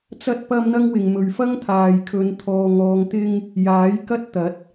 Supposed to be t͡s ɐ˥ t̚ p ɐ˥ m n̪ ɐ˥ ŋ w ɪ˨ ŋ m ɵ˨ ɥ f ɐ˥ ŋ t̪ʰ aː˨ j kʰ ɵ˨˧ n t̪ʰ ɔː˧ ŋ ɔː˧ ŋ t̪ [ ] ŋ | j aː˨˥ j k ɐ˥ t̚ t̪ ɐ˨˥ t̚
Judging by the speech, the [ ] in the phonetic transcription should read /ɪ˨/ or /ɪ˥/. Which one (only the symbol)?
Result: ɪ˥